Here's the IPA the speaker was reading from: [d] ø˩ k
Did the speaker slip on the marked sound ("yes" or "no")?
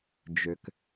yes